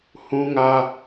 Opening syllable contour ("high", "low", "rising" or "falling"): high